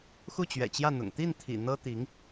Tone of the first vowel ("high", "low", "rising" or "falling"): falling